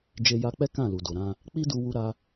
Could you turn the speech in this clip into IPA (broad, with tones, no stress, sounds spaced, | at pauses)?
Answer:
d͡ʒ e˧ j a˧ k͡p ɛ˦ k ã˦˨ l u˨ d o˨ ɾ ã˧ | k͡p i˦ d u˧ w u˧ ɾ a˧